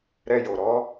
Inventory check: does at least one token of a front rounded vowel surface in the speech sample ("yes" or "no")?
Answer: no